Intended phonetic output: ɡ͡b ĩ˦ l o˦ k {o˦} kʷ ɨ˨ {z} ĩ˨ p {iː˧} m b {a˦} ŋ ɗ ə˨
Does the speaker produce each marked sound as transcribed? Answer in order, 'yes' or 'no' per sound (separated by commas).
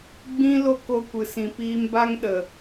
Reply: no, no, yes, yes